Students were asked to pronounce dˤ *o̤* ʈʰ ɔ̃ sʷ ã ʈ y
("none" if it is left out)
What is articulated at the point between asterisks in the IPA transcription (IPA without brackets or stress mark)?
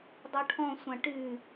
o